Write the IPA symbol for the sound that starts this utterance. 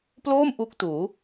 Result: p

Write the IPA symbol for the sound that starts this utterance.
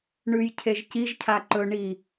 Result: ɳ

